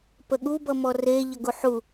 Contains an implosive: yes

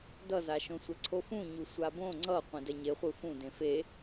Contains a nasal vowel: yes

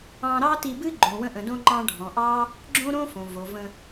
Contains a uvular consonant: no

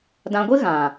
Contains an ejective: no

